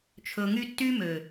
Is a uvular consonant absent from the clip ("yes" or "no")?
yes